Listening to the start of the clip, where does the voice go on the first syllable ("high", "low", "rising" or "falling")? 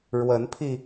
rising